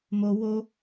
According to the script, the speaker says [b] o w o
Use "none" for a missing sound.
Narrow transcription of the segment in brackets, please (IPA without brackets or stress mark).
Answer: m